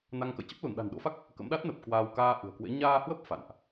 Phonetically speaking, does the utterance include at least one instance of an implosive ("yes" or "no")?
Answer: yes